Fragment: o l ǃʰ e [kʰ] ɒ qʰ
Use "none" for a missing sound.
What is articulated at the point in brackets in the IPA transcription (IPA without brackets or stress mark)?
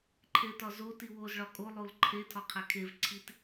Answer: tʰ